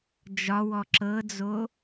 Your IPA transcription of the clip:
d͡ʒ ɒ w ɔ ǁ ɤ d͡z o

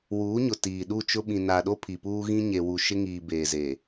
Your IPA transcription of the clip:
w uː˨˦ ɲ ʊ˨ t iː˨ ɗ u˦˨ t͡ʃ ʊ˦ ɓ ĩ˨ n a˨ ɗ o˦ pʰ i˨ p uː˦ ɣ ĩ˦ ɲ e˨ w u˨ ʃ ɪ˦ ŋ iː˨ b eː˨ z eː˨

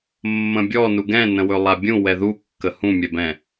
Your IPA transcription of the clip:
mː ə̃ bʲ ɔ n u ɡ ɛ̃ n ə̃ w ɵ lˠ a bʲ ũ w ɛ ð u kː ə h ũ mʲ ɛ b ɛ̃

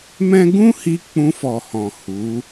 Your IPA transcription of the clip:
m ɛ̃˦ ɡ ũ˦ h i˧ k͡p ũ˧ f ɔ˨ h ɔ̃˨ h u˨˦

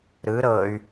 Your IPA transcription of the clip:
ɾ ɯ ɾ ɤ y̯

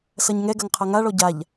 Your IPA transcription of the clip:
s ɐ ɲ ŋ ɛ ɡ ɐ ŋ qʰ ɐ ŋ a ɭ ɔ ɟ a ʎ

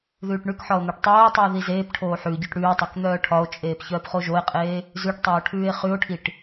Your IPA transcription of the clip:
ð ʉː ʈ ɳ ʉ k ħ ɒ o̯ n̪ o ʈ tˤ oː tˤ ʉː ð i z eː p ʈʰ oː ħ ʉ ɟ œ ʈ ɽ ʉː tˤ o k n̪ œː ʈʰ ɒ o̯ t͡ʃʼ eː p ç œː p χ o ʒ o e̯ qʼ eː | z ʉ ʈ tˤ oː ʈʰ ʉː e̯ χ ʉ o̯ ʈʰ i ʈ

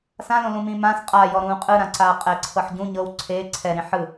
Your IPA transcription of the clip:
s ã l õ l ũ m ĩ m ã s qʼ a j ɔ ɾ ũː qʼ ɯ ɾ ã ǀ aː qʼ ɛ ǀʰ ɤ ħ ɟ ũ ɲ ɤ w ǀʰ eː ǀʰ ɛ ɾ ĩ ħ ɯ

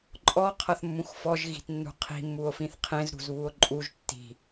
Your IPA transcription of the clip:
ǃʼ ɔ qʰ ɐ θ mː ũ x f ɔ ʒ ɣ i̤ t nː ṳ qʰ i̤ mː u o̯ f ĩ θ qʰ ẽ z ɾ ṳ z β u o̯ ǃʼ u ʒ tː i̤

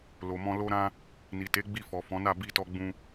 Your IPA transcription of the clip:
l o˨ m ɔ̃˧ l o˧ ɾ ã˧ | n i˨ t e˨˦ ɡ͡b i˧ f ɔ˨ f ɔ̃˨˦ n a˦˨ b i˧ t ɔ˧ ɡ͡b ũ˧

